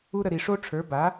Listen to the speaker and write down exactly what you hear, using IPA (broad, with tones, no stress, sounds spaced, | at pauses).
u˦ ɾ ə˧ ɾ i˨ ʂ o˦ ʈ͡ʂʰ ə˞˨˦ b a˨˦